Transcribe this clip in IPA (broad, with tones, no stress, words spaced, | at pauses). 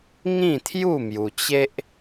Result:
ŋĩ˥˧t̪ʰju˥˧mju˧t͡ɕe˦ʔ